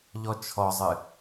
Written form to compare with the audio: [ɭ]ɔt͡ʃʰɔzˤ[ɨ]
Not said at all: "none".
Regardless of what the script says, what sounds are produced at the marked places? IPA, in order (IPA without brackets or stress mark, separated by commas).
ʎ, ɨ